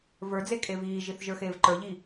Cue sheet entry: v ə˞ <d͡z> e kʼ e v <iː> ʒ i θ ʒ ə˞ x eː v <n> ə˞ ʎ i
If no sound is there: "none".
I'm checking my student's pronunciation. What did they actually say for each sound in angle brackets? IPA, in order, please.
d͡z, iː, ǃ

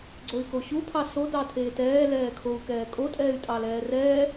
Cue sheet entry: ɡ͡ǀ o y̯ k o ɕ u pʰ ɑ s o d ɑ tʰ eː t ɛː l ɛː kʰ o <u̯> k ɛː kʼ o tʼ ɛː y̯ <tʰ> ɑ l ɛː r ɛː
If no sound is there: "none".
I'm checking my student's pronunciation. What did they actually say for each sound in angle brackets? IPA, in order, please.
u̯, tʼ

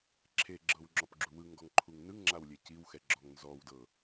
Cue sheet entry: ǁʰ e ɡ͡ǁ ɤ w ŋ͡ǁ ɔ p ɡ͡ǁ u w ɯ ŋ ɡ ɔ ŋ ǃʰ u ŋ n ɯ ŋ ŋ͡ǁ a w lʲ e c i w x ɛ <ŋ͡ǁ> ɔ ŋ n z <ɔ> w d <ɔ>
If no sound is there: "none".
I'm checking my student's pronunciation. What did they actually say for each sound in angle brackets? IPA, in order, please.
ɡ͡ǁ, ɔ, ɤ

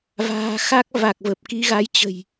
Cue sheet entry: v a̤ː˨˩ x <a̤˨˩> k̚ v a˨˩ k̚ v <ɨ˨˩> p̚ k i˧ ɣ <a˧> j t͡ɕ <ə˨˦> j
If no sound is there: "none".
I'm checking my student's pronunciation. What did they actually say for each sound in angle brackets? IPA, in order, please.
a˦˥, ə˨˩, a˨˦, ə̤˨˩

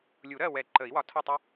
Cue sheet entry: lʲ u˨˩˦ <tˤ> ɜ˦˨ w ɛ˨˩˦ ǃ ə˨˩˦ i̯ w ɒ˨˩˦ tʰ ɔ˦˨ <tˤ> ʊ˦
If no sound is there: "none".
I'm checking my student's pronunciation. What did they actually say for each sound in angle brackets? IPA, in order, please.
ɾ, tˤ

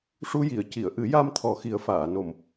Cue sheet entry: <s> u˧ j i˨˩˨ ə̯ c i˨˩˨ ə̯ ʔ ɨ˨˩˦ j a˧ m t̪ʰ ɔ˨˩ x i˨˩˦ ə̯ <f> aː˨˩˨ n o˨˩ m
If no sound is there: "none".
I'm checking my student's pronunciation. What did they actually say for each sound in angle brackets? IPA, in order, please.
ʂ, f

